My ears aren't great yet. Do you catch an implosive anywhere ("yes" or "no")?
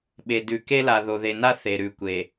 yes